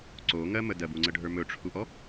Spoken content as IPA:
ǀ o ŋ ɜ m ə d ɜ b u ŋ͡ǀ ə ɖʱ ə˞ m ɵ ʈ͡ʂʰ u ʔ ɔ

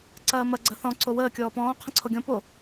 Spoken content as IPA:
ǀ ɐː m ɐ ɡ͡ǀ ɐ θ ɔ̃ ǀ o w əː kʲ ɔː p ɔ̃ː qʰ ɐ̃ ǀʰ o ɡʲ ɔ̃ p o

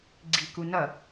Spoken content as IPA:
ɡ͡ǀ i k u n ʌ

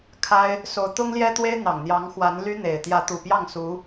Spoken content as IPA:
kʰ a˥ ɪ̯ | s o˧˥ ʊ̯ t̪ ʊ˥ ŋ l j ɛ˥ t̪ w e˥ ɪ̯ n̪ ɑ˨˩ ŋ n̪ j ɑ˧˥ ŋ x w a˧˥ n l y˥ n̪ e˨˩ ɪ̯ t̪ j ä˧˥ t̪ u˨˩ p j ɑ˥˩ ŋ s u˧˥

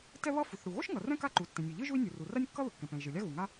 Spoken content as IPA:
t ɛ˥ β ʌ˥ f u˩ θ ɽ u˩ ɣ o˥ ʃ ŋ ʌ˩ r ɛ̃˥ k a˥ ǃ u˩ tː ɛ̃˩ nʲ ɯ˩ ʎ ɯ˥ ʒ u˥ i̯ nʲ u˩ r u˩ r a˥ nʲ kː ʌ˥ ð ɯ˩ kː ɛ̃˩ p ɛ̃˩ i̯ ʒ ɯ˩ lʲ a˥ ɣ u˩ ŋ a˥

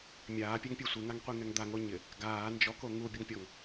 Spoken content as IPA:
mʲ aː pʲ ɛ ŋ pʲ ɛ sʷ e ŋ a ŋ qʷ i ŋ ɛ ŋ d̪ a ŋ o ɲ ɪ | ɡ aː n d͡ʒ ɔ k o ŋ u bʲ ʊ ŋ pʲ ɔ ŋ

